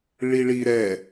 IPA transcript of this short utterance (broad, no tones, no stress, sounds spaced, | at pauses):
ɭ i ɭ i ɾ ɛ